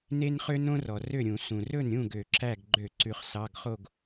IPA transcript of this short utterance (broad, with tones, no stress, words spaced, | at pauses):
ne˥nχø˥nõ˥ rɔ˩rø˥˨ɾʲũ˧˩˧ sũ˩rɵ˥˨nɾʲũ˥˨ ɡø˧˩˧ǁæ˥˨ɡ ɡ͡ǃø˧˩˧ ǀʉ˩χsɑ˩˧˩ɡχo˥˨ɡ